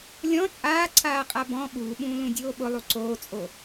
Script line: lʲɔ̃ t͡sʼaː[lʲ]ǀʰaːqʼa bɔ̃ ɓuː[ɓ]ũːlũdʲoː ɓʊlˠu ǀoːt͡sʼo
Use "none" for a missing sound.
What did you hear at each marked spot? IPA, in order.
none, ɓ

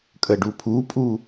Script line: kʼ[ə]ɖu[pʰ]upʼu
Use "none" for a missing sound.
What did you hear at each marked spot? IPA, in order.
ə, pʰ

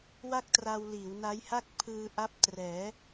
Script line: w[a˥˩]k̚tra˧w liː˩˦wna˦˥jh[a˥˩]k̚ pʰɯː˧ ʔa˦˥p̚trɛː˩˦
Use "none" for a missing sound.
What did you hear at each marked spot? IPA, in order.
a˥˩, a˥˩

